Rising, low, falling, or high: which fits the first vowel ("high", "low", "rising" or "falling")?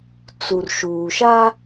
low